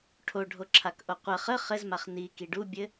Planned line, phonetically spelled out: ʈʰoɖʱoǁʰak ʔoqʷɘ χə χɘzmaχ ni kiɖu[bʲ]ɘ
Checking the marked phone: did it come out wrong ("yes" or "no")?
no